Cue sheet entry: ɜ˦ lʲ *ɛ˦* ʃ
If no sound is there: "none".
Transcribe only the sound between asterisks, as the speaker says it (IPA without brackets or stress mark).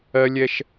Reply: ɛ˦